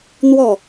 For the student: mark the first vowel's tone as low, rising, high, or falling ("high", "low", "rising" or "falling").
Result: falling